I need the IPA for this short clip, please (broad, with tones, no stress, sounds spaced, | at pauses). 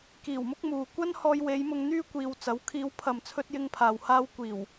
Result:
k iː˨˩ w m ʊ˥ k̚ m uː˨ kʷ ɐ˥ n h ɔː˧ j w e˨˧ j m ʊ˧ ŋ n̪ yː˥ kʷ iː˨ w t͡s ɐ˨˥ w kʰ iː˨˧ w pʰ ɐ˨ m t͡sʰ ɵ˥ t̚ j ɪ˥ ŋ pʰ aː˨ w h aː˥ w kʷ iː˨˩ w